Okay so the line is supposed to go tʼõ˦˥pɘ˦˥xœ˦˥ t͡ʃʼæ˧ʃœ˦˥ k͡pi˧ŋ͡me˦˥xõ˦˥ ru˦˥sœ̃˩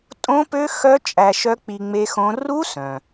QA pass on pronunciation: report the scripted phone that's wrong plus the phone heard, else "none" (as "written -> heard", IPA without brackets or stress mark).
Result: ɘ˦˥ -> ø˦˥